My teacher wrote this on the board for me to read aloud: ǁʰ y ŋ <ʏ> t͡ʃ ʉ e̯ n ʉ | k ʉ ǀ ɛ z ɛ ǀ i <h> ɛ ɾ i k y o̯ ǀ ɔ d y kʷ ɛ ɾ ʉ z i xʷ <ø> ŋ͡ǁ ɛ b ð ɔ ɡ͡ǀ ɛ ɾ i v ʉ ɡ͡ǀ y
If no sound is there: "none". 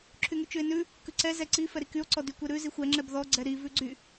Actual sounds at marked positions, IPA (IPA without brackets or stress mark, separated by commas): y, f, ɛ